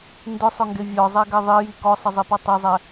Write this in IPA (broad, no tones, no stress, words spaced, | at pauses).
ndʊsˤʊŋɡe vʲɔzˤɛɡɛ ðˤiji kɔsˤəzˤipɔ tˤezˤɛ